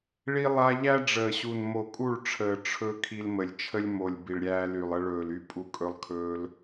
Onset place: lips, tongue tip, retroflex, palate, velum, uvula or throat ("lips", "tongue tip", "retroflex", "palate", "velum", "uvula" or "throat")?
retroflex